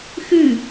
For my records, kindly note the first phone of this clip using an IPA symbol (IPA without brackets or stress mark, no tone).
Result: x